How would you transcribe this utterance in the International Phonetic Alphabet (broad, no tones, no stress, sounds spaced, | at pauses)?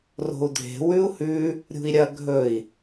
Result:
r o̤ u̯ dʱ e̤ w ʉ u̯ h ʉ | ɾʲ ṳ i̯ ɾʲ ɐ ɡʱ ɵ i̯